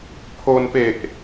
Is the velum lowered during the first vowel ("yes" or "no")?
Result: no